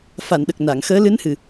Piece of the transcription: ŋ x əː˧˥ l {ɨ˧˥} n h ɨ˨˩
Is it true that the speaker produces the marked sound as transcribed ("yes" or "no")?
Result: yes